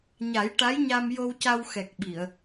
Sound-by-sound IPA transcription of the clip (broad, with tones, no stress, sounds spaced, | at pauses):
ɲ a˨˩˦ j ʈ a˧˥ j ɲ a˧ m j o˧ w c a˧ w x ɛ˨˩ k̚ ɓ i˨˩˨ ə̯